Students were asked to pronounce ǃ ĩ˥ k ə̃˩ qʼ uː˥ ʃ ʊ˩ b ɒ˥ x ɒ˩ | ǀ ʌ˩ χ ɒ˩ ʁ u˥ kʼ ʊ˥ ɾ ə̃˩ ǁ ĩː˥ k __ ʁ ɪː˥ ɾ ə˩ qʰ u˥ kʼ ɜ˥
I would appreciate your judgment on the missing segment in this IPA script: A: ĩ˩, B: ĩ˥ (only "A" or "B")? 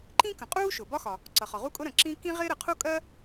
B